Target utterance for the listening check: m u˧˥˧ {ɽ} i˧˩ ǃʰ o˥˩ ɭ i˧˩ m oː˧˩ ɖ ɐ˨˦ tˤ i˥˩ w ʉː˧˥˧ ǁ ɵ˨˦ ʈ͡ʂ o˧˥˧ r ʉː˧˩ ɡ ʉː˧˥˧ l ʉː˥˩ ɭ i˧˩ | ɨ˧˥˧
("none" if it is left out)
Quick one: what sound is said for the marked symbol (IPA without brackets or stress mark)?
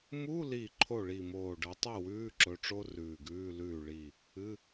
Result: l